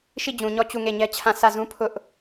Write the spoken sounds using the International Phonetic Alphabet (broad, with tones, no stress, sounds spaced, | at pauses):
ʃ i˦˨ d͡ʑ ũ˨ ɲ ɔ˦˨ t͡ɕ u˦˨ ŋ e˦˨ ɲ ɛ˦ t͡ɕʰ ã˦˨ s ä˦˨ z ũ˦ pʰ ʊ˦ ʔ